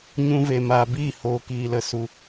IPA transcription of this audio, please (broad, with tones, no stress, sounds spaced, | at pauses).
ɲ ũ˧ v e˨ m aː˨ b iː˦˨ h oː˨ k iː˨ l ə˨ s u˨